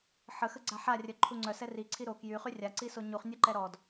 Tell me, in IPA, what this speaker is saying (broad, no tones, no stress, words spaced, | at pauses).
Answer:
ħəxəɡ͡ǀa ħarʲœǃʰu ŋ͡ǀœsɛ riǀʰi ɾo kjyχy rʲaǀiso ɲuχnʲœǃɛ ɾɔd